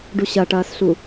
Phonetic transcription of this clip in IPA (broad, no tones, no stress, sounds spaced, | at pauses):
ɖ u ɕ ɐ ʈ ɐː s ɬ u